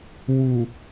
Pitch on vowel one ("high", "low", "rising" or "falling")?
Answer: low